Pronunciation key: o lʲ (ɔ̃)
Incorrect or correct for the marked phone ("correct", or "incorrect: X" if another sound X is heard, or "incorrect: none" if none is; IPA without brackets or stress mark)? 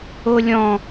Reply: correct